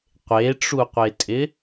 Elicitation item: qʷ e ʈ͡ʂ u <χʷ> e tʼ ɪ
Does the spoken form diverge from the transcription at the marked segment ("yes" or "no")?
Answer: yes